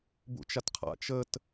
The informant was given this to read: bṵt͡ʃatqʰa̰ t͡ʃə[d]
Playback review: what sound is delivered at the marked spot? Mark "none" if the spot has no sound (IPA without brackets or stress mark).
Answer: t